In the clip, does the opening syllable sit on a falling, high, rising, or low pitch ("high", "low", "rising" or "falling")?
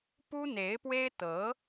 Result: high